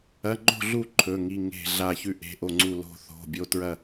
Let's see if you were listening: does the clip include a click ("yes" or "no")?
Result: yes